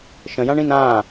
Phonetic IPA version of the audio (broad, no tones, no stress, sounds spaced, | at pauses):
ʃ ə̃ j ã ɳ ĩ n ã